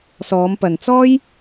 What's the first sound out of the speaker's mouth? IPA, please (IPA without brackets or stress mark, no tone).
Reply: s